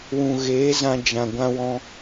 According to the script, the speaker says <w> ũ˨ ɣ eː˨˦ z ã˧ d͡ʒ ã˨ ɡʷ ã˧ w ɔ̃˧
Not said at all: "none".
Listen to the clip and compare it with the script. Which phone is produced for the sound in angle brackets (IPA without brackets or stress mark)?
w